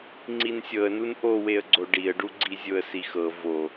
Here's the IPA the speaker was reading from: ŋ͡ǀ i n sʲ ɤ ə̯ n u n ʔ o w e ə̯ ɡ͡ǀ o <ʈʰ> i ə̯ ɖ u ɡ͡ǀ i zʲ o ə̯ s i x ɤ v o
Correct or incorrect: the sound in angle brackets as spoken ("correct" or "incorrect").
incorrect